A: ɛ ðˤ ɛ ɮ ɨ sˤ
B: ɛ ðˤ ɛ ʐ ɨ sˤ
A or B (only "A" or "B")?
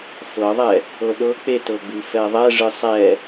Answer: B